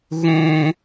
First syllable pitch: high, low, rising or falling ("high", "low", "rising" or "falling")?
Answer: low